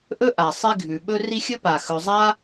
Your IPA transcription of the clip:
ʔ ɵ˥ ʔ a˩ sˤ i˦ ɡʱ ʉ˩ ɓ ɵ˥ r i˦ xʲ ɵ˥ p a˩ x ɵ˨ zˤ a˥

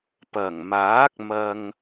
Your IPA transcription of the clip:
p ɐ˨˩ ŋ m aː˨˥ k̚ m ɐ˥ ŋ

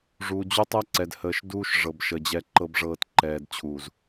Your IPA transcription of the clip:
ʐ u˨ d͡ʑ u˦ tˤ ɛ˦ ǀ ɛ˨ d h əː˨ ʃ d uː˦ ʃ ʐ ɤ˨ b ʃ ə˨ d͡ʑ ɛ˨ ǃ ɤ˨ b ʐ ɤː˨ t ǃ ɛː˨ d t͡ɕʰ uː˨ z

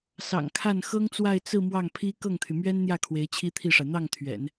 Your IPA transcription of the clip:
s ɑ̰˨˩ ŋ kʰ a˥˩ n x ɤ˥ ŋ t͡s w a˥˧ ɪ̯ t͡s ɹ̩˥˧ m w ɑ˥˩ ŋ pʰ i˥ k ɤ˥˩ ŋ t̪ʰ y˩ m ɥ ɛ˥ n n̪ j ä˥˩ kʰ w e˧˥ ɪ̯ t͡ɕʰ i˥ t̪ʰ i˥˩ ʂ a˩ ɪ̯ n̪ ɑ˥˩ ŋ t̪ʰ ɥ ɛ̰˨˩˦ n

